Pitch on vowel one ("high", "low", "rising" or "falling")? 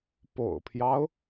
low